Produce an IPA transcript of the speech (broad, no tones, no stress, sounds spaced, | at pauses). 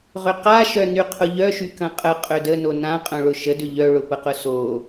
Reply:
ʁ ʏ q a ʃ œ n y qʰ ʊ ʎ œ ʃ y k ɐ̃ qʼ ə qʼ ø d ə n o n ã qʼ œ̃ ɭ ʊ ʃ ə d ʏ ʎ œ ɭ ʊ p ə q ʊ s o